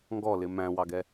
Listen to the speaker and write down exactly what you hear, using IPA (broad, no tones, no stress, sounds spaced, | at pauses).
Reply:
ŋ ɡ ɔ l ɪ m æ̃ w ɑ ɡ ɛ